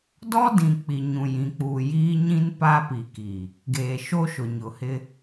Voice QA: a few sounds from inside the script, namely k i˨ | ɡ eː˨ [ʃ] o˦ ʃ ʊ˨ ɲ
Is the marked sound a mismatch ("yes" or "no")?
no